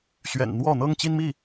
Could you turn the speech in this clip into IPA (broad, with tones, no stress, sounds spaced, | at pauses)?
ɕ ɥ ɛ̰˨˩ n n̪ w ɔ˥˩ n̪ ɤ˥ ŋ t͡ɕ i˥ n m i˥˩